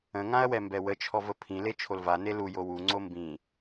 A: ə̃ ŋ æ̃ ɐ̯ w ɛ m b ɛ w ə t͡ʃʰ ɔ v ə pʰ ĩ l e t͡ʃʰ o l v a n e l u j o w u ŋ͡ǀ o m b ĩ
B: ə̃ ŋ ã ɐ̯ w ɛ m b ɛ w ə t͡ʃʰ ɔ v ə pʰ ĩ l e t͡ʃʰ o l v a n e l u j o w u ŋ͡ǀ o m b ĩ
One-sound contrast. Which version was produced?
B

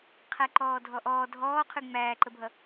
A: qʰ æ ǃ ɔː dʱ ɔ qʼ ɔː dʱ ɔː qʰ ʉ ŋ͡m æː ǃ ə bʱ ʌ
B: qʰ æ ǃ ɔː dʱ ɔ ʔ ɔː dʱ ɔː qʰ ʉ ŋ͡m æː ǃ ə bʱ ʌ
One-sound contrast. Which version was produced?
B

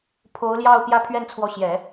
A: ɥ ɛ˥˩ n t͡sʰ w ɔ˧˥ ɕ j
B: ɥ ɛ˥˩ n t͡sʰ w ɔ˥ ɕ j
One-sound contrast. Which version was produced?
A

